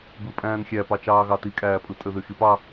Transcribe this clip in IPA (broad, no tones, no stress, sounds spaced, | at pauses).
b ɯ pʼ æ̃ː n xʲ æ p ɑ t͡ʃ ɑː ɣ ɑ t i kʼ æː pʼ ɯ tʼ ø ð y x i p ɑ